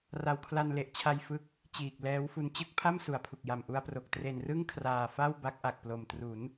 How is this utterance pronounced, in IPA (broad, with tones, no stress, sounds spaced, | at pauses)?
r a˨˩ w kʰ l a˧ n l e˨˩ ʔ t͡ɕʰ a˧ j f ɯ˦˥ k̚ | t͡ɕ iː˨˩ k̚ l ɛː˦˥ w f u˧ n t͡ɕ ɯ˥˩ k̚ pʰ a˥˩ m s u˨˩ a̯ pʰ u˨˩ k̚ j a˨˩ m ʔ u˧ a̯ p r o˨˩ k̚ t r e˨˩ n r ɯ˥˩ ŋ kʰ r aː˨˩ f a˥˩ w b a˦˥ k̚ ʔ a˨˩ k̚ p l o˨˩ m t r u˩˦ n